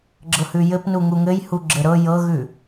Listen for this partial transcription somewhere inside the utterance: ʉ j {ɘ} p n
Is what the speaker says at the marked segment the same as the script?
yes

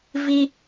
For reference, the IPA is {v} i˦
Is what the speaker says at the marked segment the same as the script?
yes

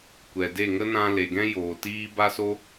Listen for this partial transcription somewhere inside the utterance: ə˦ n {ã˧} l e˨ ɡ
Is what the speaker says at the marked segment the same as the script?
yes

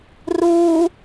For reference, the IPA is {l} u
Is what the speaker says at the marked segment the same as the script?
no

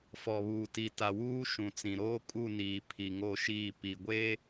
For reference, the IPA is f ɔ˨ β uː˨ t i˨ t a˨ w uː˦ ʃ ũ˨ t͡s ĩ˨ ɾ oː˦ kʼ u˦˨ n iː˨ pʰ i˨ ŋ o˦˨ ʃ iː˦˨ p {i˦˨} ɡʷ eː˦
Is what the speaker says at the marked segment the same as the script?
no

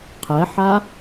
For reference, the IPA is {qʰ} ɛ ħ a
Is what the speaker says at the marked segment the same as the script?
yes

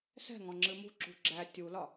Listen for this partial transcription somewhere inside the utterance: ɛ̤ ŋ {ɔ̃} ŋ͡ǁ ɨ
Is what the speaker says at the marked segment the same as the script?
yes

